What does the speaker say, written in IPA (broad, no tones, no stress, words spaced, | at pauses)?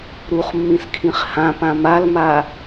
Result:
ɾuχmːĩskʰĩχ hãpã malma